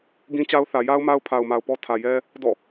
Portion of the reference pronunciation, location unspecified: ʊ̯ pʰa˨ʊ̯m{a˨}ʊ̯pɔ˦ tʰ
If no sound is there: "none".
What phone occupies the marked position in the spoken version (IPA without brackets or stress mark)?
a˨